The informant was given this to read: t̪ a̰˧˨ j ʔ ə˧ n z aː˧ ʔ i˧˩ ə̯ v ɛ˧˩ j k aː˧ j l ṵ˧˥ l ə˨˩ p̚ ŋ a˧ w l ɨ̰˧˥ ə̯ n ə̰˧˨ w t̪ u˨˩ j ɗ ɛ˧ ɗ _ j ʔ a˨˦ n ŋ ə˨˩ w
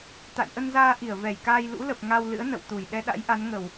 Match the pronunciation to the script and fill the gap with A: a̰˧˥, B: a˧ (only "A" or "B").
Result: A